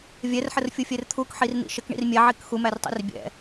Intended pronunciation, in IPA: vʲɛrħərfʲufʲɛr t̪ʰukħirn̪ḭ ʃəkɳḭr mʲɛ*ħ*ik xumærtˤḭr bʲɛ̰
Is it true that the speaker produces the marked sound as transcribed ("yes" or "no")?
no